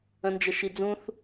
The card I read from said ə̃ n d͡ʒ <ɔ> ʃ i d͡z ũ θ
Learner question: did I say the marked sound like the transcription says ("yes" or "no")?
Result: no